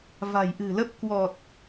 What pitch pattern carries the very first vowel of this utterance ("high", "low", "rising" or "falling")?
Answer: low